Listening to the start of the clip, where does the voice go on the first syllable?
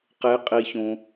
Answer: rising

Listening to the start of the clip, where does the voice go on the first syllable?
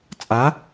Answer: rising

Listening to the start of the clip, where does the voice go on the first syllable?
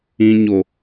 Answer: low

